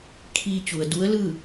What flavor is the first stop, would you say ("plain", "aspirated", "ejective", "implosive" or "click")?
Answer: aspirated